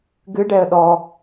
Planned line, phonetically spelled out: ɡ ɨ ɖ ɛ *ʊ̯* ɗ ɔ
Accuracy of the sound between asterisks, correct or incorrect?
incorrect